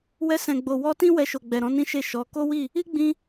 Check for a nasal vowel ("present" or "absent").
present